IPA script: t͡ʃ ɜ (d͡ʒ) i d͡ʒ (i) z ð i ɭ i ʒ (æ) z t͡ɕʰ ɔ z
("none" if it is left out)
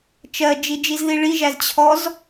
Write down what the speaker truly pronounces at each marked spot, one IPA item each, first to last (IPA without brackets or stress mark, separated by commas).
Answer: d͡ʒ, i, æ